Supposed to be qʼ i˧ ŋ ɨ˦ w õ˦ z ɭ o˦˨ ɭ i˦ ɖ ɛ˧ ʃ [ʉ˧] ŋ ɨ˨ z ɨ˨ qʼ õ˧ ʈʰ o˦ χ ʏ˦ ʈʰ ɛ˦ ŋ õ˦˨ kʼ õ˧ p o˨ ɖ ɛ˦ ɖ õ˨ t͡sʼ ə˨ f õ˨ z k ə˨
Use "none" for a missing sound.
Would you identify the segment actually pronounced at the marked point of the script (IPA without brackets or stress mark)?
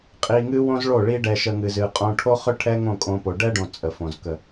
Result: ə˧